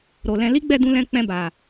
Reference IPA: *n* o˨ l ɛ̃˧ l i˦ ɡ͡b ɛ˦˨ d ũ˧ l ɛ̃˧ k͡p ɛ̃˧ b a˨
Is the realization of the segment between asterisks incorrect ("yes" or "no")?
yes